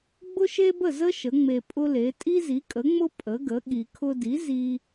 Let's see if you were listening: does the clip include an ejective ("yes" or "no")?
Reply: yes